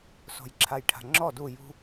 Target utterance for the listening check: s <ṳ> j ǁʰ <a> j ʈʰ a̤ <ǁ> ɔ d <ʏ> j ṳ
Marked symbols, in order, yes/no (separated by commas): no, yes, no, no